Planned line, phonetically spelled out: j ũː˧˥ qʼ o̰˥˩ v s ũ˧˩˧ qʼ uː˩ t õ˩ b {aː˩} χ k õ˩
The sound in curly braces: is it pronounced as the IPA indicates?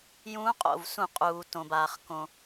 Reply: yes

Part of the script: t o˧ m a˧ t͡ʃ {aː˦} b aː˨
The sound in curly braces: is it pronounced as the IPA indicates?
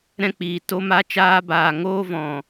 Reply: no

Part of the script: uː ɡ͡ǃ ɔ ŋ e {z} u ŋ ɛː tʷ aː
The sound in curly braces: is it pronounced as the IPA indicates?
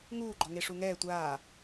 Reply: no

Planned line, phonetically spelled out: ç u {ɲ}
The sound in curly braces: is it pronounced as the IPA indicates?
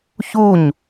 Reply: yes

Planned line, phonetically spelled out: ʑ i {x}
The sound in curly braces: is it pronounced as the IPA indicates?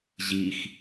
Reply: yes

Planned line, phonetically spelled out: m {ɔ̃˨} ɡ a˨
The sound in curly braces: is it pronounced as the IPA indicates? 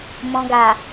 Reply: yes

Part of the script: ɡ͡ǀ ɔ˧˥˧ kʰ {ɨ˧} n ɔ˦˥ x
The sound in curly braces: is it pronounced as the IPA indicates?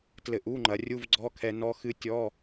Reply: no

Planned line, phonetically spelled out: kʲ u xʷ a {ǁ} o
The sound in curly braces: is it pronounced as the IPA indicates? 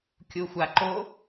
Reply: no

